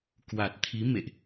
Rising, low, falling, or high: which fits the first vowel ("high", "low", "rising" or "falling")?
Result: low